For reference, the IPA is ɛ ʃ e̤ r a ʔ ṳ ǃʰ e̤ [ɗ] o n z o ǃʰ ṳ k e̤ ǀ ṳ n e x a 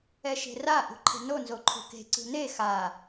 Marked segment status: incorrect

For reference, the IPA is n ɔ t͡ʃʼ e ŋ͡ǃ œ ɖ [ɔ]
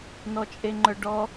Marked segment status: correct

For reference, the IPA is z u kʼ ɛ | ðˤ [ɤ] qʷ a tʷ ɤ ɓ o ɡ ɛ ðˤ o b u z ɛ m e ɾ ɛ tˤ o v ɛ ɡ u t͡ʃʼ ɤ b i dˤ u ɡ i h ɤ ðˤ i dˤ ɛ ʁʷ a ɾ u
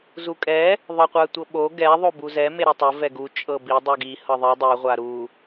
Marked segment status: correct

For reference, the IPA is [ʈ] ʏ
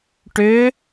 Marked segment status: correct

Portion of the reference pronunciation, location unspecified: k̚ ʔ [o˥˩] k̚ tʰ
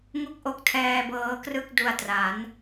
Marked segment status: incorrect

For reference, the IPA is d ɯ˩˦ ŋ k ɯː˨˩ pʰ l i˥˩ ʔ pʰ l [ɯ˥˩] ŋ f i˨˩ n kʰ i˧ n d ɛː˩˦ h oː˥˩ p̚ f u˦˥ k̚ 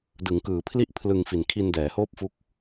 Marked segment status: incorrect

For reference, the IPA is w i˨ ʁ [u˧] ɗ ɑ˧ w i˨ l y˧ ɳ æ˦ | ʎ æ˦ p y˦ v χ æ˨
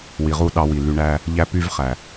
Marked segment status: incorrect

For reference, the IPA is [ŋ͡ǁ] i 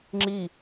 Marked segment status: correct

